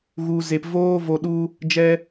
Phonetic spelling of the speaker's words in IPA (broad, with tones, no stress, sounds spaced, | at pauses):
ɣ u˧ z e˧ p v oː˦ v o˧ ɗ u˦ | d͡ʒ ɛ˦